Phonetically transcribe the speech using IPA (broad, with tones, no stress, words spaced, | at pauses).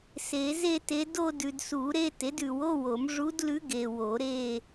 se˨˩˦ze˥˧te˧˥ do˥˧dʉ˨dsu˨˩˦ɾe˥˧ te˩˥dʉ˨wo˧˥˧wo˨˩˦m ʐu˧˥dlʉ˧˥ ɡe˨wo˨˩˦ ɾe˥˧